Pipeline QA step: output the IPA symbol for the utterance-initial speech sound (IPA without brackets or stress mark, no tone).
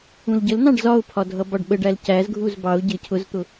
ũ